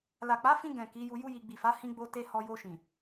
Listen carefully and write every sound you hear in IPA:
l a˨ k͡p a˨˦ f ĩ˧ ɡ ɛ̃˨ k i˨˦ j u˧ j u˦ j i˧ ɡ͡b i˨ f a˨˦ h ĩ˦ ɡ͡b o˦ t e˦ h ɔ˧ j o˧ ʃ ĩ˨

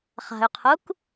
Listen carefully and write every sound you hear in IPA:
χ a̤ y̯ qʰ u k

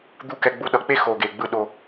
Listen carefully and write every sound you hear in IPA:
d̪ u˦˨ k ɛ˧ ɡ͡b u˧ ɗ ʌ˨ k͡p e˦ x o˨ ɡ e˨ ɡ͡b ɯ˧ ɗ o˧

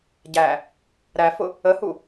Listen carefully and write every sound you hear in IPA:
ɟ æ | ɾ æ f ʊ | ə h u

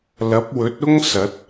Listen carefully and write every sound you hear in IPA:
l ɐ˨˥ p̚ w ɵ˨˥ t̚ ʊ˥ ŋ s ɐ˨˥ t̚

